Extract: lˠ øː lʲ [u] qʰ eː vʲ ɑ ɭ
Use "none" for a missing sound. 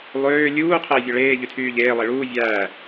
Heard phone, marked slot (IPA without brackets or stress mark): uː